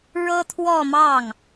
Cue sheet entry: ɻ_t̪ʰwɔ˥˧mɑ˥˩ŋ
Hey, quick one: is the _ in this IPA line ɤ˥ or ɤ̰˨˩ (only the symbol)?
ɤ˥